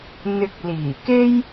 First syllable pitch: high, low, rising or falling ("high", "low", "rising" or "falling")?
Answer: low